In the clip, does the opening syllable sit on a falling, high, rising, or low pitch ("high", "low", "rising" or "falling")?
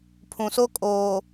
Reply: low